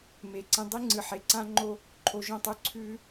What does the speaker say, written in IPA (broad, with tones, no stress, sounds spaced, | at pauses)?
m e˨˦ ǀ ẽ˧ dˤ i˦ ŋ͡ǀ ɨ˨ ħ e˨ ǀ ã˦ ŋ͡ǃ o˦ | ǃʰ o˨ ʒ õ˦˨ tˤ ʉ˧ ǀʰ ʉː˧